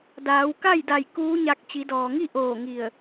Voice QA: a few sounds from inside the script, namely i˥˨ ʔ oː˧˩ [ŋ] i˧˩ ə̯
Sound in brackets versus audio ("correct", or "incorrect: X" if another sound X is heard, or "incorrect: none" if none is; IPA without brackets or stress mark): correct